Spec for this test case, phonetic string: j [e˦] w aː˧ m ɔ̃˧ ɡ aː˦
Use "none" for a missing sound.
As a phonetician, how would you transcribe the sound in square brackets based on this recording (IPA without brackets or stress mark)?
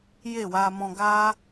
e˦˨